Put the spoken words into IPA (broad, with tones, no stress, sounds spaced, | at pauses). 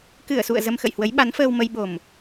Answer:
k ɨ˧˩ ə̯ s ṵ˧˨ ə̯ z ə˧ m x ə̰˧˨ j h w ə˨˦ j ɓ a˨˦ n f əː˧ w m ə˧ j ɓ o˨˩ m